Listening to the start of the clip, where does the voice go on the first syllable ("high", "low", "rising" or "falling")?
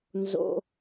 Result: high